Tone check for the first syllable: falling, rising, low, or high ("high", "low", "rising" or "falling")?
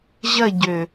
falling